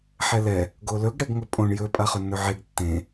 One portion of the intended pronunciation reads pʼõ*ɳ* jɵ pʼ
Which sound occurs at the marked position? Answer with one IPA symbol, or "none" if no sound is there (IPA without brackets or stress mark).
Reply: ɳ